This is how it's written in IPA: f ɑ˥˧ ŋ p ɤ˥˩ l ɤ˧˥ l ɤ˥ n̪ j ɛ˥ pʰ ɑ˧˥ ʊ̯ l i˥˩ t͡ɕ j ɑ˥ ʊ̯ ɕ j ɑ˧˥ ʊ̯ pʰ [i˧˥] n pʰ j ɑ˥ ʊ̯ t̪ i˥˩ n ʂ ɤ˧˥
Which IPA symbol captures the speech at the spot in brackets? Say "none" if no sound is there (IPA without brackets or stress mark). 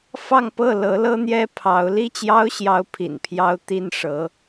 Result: ḭ˨˩